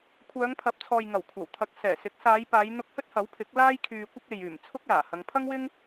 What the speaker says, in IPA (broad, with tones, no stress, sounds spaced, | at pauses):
kʷʰ œː˨˧ ŋ pʰ ɐ˨˥ p̚ t͡sʰ ɔː˨ j ŋ ɐ˨˩ w kʷʰ ɐ˨˩ w t̪ʰ ɐ˨˥ k̚ s ɛː˨˩ s ɪ˨˥ k̚ s aː˨˧ j p aː˨˧ j n̪ ʊ˧ k̚ h ɵ˥ t̚ h ɐ˨˥ w pʰ ɪ˨˥ k̚ l aː˥ j kʰ yː˧ kʷ ɪ˥ k̚ e˨ j yː˨˩ m t͡sʰ ʊ˥ k̚ l aː˨˩ h ɐ˨˧ ŋ pʰ ɐ˥ ŋ w ɪ˥ ŋ